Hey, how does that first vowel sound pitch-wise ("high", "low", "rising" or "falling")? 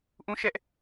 high